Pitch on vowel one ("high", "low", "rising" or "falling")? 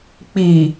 low